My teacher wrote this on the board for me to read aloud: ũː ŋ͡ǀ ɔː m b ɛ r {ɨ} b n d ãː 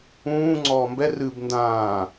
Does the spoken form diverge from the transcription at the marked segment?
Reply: no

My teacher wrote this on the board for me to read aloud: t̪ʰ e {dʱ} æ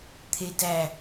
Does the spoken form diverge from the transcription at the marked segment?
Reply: yes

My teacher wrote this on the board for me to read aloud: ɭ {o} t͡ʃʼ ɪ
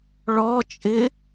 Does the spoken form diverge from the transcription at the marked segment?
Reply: yes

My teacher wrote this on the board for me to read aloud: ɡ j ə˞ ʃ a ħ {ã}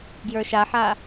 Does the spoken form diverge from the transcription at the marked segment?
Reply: yes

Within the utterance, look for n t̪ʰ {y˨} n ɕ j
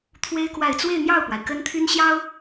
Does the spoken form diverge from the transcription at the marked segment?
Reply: yes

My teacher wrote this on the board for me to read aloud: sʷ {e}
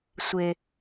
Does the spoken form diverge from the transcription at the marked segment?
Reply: no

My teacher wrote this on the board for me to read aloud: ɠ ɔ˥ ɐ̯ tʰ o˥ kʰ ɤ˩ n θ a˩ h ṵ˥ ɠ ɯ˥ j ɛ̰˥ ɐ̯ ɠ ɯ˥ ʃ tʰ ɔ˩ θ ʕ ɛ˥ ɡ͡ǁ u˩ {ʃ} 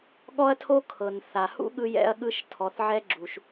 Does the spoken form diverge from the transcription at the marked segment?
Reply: no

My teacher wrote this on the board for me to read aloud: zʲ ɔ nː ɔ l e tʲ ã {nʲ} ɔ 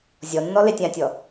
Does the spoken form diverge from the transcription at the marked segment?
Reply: yes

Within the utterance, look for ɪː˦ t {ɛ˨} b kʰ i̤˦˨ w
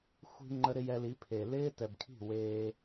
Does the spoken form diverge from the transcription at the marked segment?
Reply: no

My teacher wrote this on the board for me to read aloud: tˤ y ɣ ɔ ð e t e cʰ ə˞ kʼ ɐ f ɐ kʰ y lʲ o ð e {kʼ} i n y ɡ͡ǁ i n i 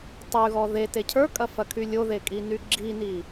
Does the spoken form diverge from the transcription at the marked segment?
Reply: no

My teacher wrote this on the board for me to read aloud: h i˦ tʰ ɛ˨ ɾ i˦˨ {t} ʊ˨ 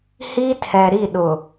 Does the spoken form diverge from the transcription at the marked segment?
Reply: yes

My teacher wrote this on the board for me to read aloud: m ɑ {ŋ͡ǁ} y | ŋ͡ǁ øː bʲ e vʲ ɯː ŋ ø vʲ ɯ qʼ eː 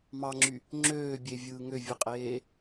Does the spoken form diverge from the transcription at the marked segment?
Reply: no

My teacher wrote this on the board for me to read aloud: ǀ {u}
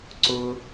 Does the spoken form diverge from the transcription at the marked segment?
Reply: yes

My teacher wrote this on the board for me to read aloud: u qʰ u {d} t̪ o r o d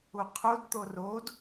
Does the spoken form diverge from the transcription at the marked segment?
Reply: no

